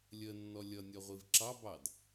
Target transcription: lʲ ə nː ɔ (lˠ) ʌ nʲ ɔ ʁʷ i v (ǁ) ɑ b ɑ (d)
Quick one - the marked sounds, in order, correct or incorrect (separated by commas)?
incorrect, correct, correct